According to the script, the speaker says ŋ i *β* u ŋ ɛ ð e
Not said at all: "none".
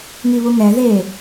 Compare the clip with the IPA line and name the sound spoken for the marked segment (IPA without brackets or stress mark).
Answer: β